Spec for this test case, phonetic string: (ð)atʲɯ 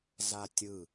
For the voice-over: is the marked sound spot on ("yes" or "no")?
no